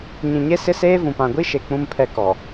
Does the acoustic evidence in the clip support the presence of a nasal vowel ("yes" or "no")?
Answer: yes